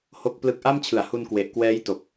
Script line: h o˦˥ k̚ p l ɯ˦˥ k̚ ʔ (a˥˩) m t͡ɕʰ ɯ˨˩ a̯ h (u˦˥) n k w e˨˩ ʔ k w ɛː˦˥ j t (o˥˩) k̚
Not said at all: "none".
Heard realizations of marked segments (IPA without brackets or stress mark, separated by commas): a˥˩, u˧, o˨˩